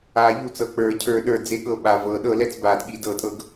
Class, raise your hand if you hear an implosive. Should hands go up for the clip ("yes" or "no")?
yes